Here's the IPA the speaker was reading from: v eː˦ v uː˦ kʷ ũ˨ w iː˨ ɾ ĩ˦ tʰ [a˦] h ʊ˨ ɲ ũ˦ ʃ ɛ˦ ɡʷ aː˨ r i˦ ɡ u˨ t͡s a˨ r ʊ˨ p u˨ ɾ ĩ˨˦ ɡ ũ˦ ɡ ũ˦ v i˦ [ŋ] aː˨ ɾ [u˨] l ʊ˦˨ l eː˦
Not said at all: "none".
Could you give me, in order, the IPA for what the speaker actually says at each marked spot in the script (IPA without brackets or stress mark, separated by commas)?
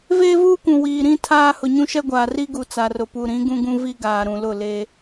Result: aː˦, ɡ, ũ˨